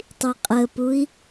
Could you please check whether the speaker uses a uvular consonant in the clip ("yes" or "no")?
yes